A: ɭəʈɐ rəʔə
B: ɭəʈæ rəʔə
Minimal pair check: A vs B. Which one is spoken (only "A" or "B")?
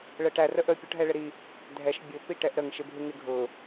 B